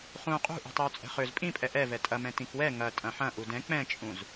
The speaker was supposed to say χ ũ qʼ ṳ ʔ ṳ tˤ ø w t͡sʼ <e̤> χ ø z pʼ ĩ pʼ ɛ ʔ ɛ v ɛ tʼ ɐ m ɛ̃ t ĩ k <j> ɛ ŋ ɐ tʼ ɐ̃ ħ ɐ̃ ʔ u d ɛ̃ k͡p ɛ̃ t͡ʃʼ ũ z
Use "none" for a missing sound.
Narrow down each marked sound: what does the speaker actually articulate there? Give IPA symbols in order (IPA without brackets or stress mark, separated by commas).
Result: ɛ̤, w